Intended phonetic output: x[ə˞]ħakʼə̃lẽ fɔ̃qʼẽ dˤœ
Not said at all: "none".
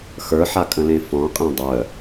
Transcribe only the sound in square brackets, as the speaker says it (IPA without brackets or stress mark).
ə˞